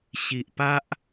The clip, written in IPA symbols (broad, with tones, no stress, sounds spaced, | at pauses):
ɕ i˨ ʔ p a˦ ʔ